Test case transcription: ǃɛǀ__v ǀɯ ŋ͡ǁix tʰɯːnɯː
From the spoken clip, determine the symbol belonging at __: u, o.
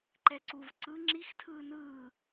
u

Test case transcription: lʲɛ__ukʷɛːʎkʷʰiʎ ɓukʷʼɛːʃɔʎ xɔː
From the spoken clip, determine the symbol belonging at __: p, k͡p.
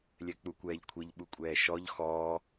k͡p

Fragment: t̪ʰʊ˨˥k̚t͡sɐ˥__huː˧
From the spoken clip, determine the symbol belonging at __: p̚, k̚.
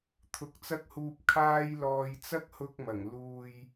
k̚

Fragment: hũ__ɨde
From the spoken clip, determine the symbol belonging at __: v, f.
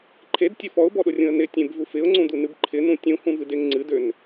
v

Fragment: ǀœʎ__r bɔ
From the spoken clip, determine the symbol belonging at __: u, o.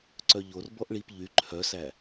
o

